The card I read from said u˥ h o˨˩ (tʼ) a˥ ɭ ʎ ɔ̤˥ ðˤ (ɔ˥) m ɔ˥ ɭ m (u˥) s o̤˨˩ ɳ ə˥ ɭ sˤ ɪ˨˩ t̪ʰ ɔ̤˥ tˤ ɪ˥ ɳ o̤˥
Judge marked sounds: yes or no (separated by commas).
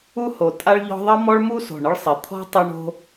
yes, no, yes